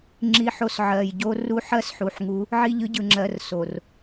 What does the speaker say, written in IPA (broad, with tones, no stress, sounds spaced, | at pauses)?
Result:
ŋ͡ǁ i˦ ħ o˦ s ʕ ɜ˨ j ɟ o˦ r u˦ ħ ɜ˦ s ħ u˨ ħ ŋ u˨˦ | ʕ i˦˨ ʎ ɯ˦ ɟ ɯ˨ ŋ͡ǁ ɜ˨ r s o˨ r